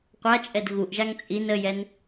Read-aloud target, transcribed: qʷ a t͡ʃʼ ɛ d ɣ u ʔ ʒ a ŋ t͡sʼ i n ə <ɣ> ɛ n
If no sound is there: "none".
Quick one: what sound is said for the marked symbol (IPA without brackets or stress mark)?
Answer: j